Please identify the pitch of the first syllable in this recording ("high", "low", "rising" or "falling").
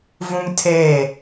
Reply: high